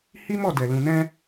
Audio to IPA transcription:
h i˦ m ɔ˦˨ d ɛ˨ l ũ˨ n ɛ̃˧

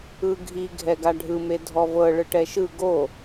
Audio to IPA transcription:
ɯ ɡʱ i ɡʱ ɛ ɡ a ɖʱ ɯ m e dʱ ɔ v ɤ ɭ ɯ ʈ ɛ ʃ ɯ ɡ o

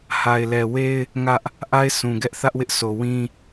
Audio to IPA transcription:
h a˨ ɪ̯ l ɛ˨ w e˦ ɪ̯ | ŋ ä˦ ʔ | ʔ a˦ ɪ̯ sʰ ũ˨ ɡ ɛ˦ ʔ θ ä˦ ʔ w ɪ˦ ʔ sʰ o˨ w ĩ˦

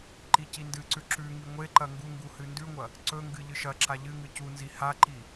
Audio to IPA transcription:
ǃ i c i n d ɨ ǀ ʉ ǁ ʉ ŋ i ŋʷ e ǃ ɐ ŋ ɡ u ŋ ɡ u h ɨ n d ʉ ŋʷ ɐ | ǀ ɵ ŋ ɡ ɨ ʎ ɨ ʃ ɐ ǁ a ʎ ɨ ŋ ɨ c u n z i h a ǃ i

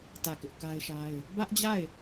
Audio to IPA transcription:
t ä˦˨ k ɪ˦ ʔ k a˦ ɪ̯ ʃ a˦ ɪ̯ | b ä˦ ʔ d͡ʑ a˦˨ ɪ̯

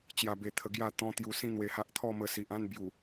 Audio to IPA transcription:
t͡ɕ j a˧ b e˧ t̪ʰ ə˧ ɡ j a˥˧ t̪ ɔ̃˦ t̪ j u˧ s ĩ˦ n̪ w e˧ h a˦ ʔ t̪ʰ ɔ˥˧ m ə˧ s i˨ ʔ ã˥˧ n b j u˨˩

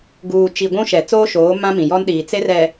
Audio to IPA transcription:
ɡ uː˨ t͡ʃ i˨ ɡʷ ũ˦ ʃ ɛ˨ t͡s oː˦ ʃ oː˨˦ m ã˦ m ĩ˨ j ɔ˦ n ɗ iː˨ t͡s e˦ r ɛ˨

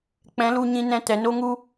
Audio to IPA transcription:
k͡p ɛ̃˨˦ l u˧ ɲ ĩ˧ n ɛ̃˧ t ɛ˨ n o˦ ŋ u˦

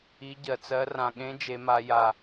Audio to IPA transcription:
i˦˥ ɟ ɜ˧ t͡s ɜ˦˥ r ã˧ ɠ ẽ˦˥ d͡ʒ e˦˥ m a˦˥ j a˧

